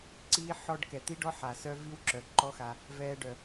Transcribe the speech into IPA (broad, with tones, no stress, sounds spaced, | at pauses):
ǀ iː˦ ħ ɔ˧ ɖ k ɛ˨ t̪ i˦ ɖ ɔ˦ ħ a˨ s œ˦ v i˦ w ǁ œ˨ ǃ ɔ˦ x a˧ | v ɛː˧ ɖ œ˨